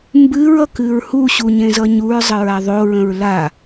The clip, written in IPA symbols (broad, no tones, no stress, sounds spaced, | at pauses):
m b ɨ ɹ ʌ k ɨ ɹ h u ɕ u ɲ ẽ z ʌ ɲ u ɹ zˤ ə ɹ a ðˤ o ɹ ə̃ ɹ l a